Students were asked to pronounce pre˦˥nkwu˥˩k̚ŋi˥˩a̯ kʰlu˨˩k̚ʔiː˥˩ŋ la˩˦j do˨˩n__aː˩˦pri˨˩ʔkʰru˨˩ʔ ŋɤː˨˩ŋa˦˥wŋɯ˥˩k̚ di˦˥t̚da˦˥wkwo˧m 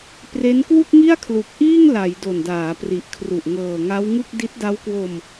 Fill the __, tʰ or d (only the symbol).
d